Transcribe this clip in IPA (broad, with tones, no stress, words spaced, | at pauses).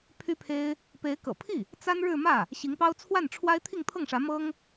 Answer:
pʰy˥pʰe˥ɪ̯ | pe˧˥ɪ̯kɤ̰˨˩pʰi˥˩ | t͡sa˥nɻɻ̩˥˧ mä˥˩ | ɕi˧˥ŋpɑ˥ʊ̯ t͡sʰwa˥˩nʈ͡ʂʰwa˥ɪ̯ t̪ʰi˥˧ŋt̪ʰɤ˥˩ŋʂä˧˥ mɤ˥ŋ